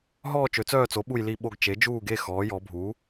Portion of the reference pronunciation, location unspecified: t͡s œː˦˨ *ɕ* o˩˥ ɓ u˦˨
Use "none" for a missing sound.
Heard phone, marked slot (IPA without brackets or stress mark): t͡s